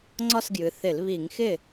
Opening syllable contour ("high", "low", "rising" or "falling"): falling